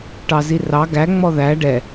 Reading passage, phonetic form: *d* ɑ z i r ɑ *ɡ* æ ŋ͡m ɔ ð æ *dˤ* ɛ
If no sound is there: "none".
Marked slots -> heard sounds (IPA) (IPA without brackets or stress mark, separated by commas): ʈ, ɡ, ɖ